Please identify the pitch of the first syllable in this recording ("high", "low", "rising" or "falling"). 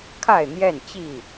falling